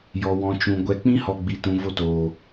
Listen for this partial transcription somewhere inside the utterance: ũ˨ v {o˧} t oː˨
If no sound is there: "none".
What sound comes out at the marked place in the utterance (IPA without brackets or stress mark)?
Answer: o˧